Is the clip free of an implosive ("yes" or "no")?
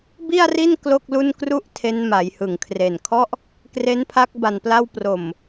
yes